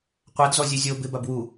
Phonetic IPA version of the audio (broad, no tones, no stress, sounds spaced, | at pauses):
qʷ a d z ɔ zʲ ʉ zʲ o b ɪ b a b w u